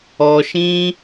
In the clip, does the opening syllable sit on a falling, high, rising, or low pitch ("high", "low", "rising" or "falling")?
high